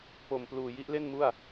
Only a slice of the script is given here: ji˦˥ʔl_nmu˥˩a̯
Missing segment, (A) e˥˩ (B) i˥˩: A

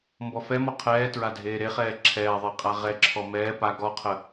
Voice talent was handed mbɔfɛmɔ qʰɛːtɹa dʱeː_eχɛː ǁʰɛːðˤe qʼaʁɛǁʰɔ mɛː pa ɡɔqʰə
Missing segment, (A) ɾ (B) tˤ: A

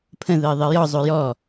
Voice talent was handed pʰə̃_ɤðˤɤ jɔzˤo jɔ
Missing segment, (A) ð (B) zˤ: A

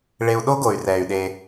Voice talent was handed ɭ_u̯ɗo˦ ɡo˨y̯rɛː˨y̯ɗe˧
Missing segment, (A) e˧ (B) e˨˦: A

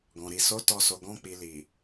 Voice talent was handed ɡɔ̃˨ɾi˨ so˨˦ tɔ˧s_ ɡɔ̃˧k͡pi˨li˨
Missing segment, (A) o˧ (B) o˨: B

